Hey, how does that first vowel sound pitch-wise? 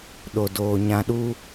low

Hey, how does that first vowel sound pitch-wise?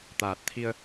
low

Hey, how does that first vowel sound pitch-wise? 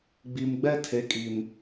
low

